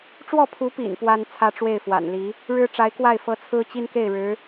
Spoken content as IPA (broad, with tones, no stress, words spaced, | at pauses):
ʈ͡ʂwɔ˥˩pʰu˧˥pḭ˨˩n pwa˥n t͡sʰä˥ʈ͡ʂwe˥˩ɪ̯fwa̰˨˩nli˧˥ | ɻɻ̩˥ʈ͡ʂa˧˥ɪ̯kwa˥˩ɪ̯ fɤ˧˥ t͡sʰɹ̩˥t͡ɕi˥nke˥˩ɪ̯ɻɻ̩˧˥